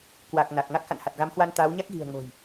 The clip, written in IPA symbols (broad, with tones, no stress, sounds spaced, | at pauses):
k w a˨˩ k̚ n a˨˩ k̚ ŋ a˦˥ k̚ x a̰˧˨ n h a˨˩ t̚ ɣ a˨˦ m h w a˧ n t̪ aː˨˦ w ɲ a˦˥ k̚ ɣ i̤˨˩ ə̯ ŋ o̤˨˩ j